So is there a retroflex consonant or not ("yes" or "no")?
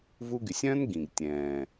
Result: no